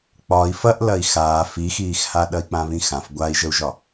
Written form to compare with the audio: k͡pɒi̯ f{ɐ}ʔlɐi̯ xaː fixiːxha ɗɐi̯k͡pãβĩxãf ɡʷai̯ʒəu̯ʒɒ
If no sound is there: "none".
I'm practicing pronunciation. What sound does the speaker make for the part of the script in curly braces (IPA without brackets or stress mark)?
ɐ